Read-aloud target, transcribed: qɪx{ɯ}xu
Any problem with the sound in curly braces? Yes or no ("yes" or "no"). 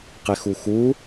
yes